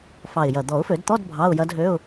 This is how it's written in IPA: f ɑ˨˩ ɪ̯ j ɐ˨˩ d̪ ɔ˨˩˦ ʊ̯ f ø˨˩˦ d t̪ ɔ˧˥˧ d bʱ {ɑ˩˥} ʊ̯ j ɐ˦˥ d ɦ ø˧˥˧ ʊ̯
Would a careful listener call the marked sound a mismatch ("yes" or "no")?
yes